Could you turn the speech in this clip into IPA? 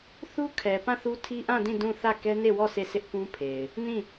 θu˦kʰɛ˨pã˦˨ θu˦tʰi˦ ʔã˦˨dĩ˦˨ dũ˦˨θä˦˨ kɛ˦ne˦˨wɔ˦˨ sʰe˦˨sʰɪ˦ʔpũ˦pʰe˨ɪ̯ | nĩ˦˨

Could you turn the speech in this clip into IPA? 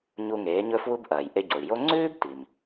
ɲu˧ ŋeː˩˧ɲɵ˧fwu˧b ʔɐː˩jʔe˧ ɟo˩i̯jo˥ ŋ͡ǀʉː˥b ti˩m

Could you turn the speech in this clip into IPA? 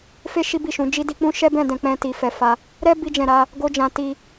fe˦ ʃi˦bi˦˨ʃũ˨˦ d͡ʒi˦ di˧k͡pũ˦ ʃɛ˦bɛ̃˦˨dɛ̃˨ k͡pɛ̃˧ ti˨ fɛ˨fa˧ | ɾɛ˦bi˧d͡ʒɛ̃˨ ɾa˧ | ɡo˦d͡ʒã˧ ti˧

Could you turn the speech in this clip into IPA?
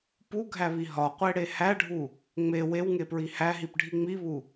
puɡʱæβi ɦɒqʷeɽe hæɖʱu | ŋ͡me wewŋepɹi hæɦipɖʱi ŋ͡miβu

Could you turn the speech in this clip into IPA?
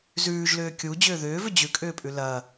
zʉːʒlʏː kʲu d͡ʑʏːðʏːvʏ d͡ʑʉkʼʏːpʼʉ lɐ

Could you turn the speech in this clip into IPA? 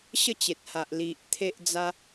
ɕə˥˧t͡ɕe˨t̚ha˨ʔ li˨ʔ t̪ʰe˦ʔd͡za˦

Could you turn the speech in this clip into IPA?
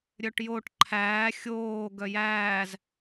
ɾʲœʈjoʈ ǃʰæː xʲoː ɡœjæːz

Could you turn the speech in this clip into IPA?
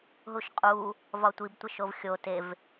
ɦuʃqʼu | vɒtʷib tʷeʃovxʲo tev

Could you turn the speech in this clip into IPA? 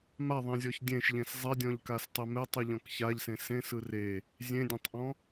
maðˤẽzʲɔç dʲẽʃʎẽs zˤedʲɔ̃ʎkastˤe metˤɯʎɔ̃k çaʎsẽ sẽsɯ re | zʲẽdʲẽtˤʔɔ̃

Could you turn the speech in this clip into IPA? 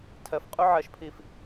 tʰɜfqʼuʕɜʃpʰif

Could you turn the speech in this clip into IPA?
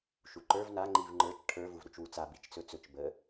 ʃuǃə˞v na ŋ͡ǃivŋ͡ǃə˞t͡ʃ ʈʰə˞ vuvɾut͡ʃwut͡sa bit͡ʃt͡sɵt͡sɵt͡ʃ bə

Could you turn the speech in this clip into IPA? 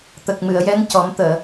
t̪ə˨˩k̚mɨ˨˩˨ə̯jɛ˧˥ncɔ˨˩˦m t̪əː˨˩˨

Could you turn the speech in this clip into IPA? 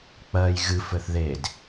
k͡pɜj ɣɨ fɘθðed

